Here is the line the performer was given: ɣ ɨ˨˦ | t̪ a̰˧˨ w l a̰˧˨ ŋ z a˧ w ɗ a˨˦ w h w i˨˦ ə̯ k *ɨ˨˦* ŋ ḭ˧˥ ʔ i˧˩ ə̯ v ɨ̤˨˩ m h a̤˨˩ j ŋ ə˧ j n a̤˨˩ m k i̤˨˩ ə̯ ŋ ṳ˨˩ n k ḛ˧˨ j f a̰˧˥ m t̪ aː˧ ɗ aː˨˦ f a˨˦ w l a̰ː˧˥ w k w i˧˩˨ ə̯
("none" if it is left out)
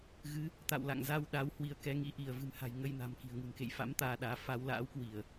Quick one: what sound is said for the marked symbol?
ɛ˨˦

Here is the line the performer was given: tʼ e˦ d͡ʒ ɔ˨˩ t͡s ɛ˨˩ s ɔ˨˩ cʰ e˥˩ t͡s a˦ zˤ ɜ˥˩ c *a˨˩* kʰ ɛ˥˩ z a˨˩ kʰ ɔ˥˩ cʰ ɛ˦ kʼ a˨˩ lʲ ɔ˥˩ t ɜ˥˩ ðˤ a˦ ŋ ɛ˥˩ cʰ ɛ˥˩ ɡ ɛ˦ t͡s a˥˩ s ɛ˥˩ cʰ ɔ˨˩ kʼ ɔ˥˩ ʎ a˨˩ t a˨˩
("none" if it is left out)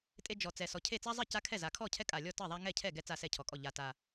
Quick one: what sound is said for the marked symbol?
a˦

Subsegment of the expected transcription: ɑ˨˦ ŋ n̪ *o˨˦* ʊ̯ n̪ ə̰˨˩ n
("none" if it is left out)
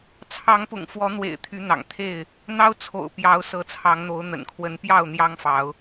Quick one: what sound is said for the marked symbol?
o˨˦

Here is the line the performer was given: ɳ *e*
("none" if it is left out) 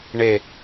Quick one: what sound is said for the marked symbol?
e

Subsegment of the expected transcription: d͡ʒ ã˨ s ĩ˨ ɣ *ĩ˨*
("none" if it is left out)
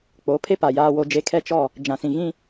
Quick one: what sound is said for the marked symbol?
ĩ˦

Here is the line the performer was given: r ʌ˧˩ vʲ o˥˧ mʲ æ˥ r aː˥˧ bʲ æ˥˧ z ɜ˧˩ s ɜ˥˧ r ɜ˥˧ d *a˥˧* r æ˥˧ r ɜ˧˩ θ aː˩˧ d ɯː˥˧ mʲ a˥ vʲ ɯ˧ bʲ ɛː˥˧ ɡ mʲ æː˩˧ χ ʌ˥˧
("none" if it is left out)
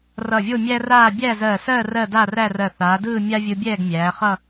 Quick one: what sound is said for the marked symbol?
a˥˧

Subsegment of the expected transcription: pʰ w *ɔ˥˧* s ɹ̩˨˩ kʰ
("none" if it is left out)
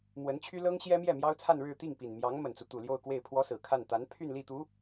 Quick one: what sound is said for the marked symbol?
ɔ˥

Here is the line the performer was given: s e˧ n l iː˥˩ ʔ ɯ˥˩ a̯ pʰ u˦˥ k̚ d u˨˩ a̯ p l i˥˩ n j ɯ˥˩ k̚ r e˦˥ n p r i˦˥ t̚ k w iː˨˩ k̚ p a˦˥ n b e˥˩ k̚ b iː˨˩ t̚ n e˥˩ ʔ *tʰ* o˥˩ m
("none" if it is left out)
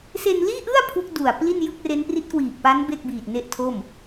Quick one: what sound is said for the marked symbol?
tʰ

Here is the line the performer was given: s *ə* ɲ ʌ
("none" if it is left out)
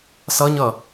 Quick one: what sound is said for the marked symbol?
ʌ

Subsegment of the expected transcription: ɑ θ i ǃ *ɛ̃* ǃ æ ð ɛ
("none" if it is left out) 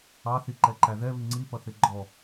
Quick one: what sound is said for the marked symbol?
ɛ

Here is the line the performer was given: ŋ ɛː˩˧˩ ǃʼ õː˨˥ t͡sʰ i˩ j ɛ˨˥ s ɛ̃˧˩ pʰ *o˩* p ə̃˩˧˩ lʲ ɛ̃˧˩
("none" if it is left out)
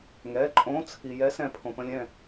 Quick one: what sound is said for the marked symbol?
õ˩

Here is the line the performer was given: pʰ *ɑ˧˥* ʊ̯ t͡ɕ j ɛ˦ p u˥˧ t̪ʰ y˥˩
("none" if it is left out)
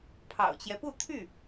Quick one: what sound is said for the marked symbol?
ɑ̰˨˩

